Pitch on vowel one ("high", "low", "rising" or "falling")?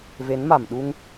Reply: rising